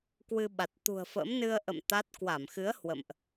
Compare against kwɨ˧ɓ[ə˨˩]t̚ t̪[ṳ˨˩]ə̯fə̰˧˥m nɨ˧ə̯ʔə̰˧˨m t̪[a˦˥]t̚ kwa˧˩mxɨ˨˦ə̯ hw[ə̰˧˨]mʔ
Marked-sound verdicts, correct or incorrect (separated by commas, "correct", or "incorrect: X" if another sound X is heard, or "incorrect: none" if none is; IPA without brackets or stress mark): incorrect: a˨˩, correct, correct, correct